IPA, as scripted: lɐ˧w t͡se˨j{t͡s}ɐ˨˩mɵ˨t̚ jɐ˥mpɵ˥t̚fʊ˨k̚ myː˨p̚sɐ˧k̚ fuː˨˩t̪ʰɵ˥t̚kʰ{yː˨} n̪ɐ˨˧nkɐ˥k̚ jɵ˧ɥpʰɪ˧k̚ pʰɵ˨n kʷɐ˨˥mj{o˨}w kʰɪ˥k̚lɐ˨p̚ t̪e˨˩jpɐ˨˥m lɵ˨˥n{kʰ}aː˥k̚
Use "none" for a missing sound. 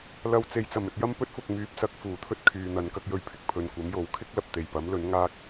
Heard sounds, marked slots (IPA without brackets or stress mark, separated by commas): t͡s, yː˨, o˨˥, ŋ